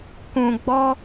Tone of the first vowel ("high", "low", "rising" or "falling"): low